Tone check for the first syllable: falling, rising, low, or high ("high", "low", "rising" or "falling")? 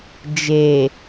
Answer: low